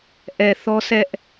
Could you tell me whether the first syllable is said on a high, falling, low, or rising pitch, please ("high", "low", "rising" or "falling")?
low